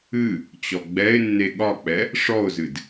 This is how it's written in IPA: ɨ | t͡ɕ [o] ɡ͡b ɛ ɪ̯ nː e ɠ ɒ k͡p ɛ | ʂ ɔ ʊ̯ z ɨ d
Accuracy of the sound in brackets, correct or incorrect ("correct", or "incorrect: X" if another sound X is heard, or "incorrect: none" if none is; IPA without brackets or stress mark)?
incorrect: ɔ